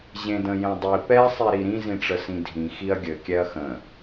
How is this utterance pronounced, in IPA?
ʑẽdə̃jẽdˤi pɛ sˤiɾiɾĩ zĩʈ͡ʂəsĩdʱĩ xiɐ̯ɡʲɘ kʲɛɐ̯xə̃

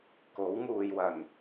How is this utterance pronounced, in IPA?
ko˨˥wŋuː˨j wɐ˨˩n

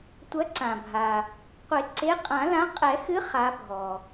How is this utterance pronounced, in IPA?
tʷɐ˨˥ ǀã˩bʱa˩ | qʷe˨˩˦ǀe˨˥qʼã˨˩˦lã˨˥ qʼɛ˨˩˦xɨ˨˥ χa˨˥bʱɔ˩

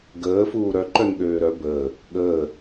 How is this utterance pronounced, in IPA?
ɡəːfuː ɾœǃœn ɠøːɾœ bəː | ɠəː

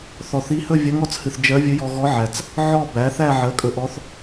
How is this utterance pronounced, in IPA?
θɔ˨˩θi˧˥ hɵ˥˧ vʲɜ˧˥ŋɔ˧t͡s hɨ˨˩θ d͡ʒɜ˧˥ vʲɵ˧˥jɔ˧ ɣɔ˧˥ʕæ˨˩t͡s | ʕɔ˥˧bæ˩˥ θæ˥˧ʕɜ˩˥kʼɵ˧ʔɔ˧˥θ

